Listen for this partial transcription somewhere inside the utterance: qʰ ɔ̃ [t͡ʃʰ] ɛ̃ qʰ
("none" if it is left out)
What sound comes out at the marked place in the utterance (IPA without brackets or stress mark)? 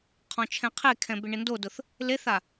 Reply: t͡ʃʰ